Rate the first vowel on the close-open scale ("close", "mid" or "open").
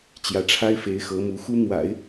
open